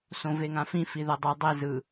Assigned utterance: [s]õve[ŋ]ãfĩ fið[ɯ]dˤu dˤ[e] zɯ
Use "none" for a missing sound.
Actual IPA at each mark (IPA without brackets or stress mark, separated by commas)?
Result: s, ŋ, ɤ, e